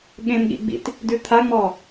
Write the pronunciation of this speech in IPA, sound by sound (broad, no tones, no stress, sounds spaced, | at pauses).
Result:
ɠ ẽ m ɠ ḭ ɡ͡b ḭ t | d ʉ t̪ʰ a ŋ͡m ɔ